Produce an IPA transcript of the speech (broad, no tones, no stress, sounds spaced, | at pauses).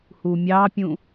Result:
h u mʲ ɑ pʲ ũ